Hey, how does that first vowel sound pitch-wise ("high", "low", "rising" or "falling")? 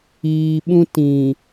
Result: low